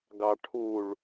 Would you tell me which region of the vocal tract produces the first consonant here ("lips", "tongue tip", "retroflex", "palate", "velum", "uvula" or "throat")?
velum